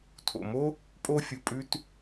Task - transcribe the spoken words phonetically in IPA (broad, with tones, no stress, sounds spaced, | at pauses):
tʰ o̰˩ m o˥ | pʼ o˥ fʲ u˩ pʼ ʉ˥ t